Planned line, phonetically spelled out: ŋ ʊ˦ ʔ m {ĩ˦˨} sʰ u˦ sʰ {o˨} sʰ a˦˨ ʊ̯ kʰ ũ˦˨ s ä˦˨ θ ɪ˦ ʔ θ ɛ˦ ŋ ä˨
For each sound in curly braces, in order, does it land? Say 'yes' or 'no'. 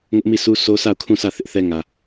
no, no

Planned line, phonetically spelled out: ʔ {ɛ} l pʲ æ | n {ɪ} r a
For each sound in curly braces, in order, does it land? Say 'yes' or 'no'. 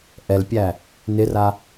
yes, yes

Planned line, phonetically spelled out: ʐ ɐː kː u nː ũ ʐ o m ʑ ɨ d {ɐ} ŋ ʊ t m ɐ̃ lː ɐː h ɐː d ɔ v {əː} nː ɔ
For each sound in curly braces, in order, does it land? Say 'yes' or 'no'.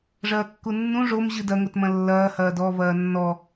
yes, no

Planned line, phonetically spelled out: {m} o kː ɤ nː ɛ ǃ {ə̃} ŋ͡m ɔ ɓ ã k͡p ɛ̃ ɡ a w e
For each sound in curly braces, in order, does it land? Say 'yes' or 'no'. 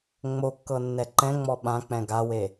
no, no

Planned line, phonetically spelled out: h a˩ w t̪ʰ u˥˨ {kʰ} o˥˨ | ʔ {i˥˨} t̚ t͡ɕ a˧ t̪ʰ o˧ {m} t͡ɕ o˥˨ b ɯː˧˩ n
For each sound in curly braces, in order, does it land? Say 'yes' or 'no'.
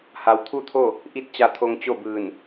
no, yes, no

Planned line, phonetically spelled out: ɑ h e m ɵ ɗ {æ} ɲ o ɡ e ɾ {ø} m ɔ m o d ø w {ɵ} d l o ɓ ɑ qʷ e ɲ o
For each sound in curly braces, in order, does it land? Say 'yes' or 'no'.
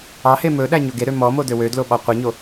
yes, yes, no

